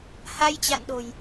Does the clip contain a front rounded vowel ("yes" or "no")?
no